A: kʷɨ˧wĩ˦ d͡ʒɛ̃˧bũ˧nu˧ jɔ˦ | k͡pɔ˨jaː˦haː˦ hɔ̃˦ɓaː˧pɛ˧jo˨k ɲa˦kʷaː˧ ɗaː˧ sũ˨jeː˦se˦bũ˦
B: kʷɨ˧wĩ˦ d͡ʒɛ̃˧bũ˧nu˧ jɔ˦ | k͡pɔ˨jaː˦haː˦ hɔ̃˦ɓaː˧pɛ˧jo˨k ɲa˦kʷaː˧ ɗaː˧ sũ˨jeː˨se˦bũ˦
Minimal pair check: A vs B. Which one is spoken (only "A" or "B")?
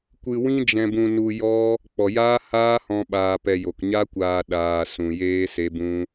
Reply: A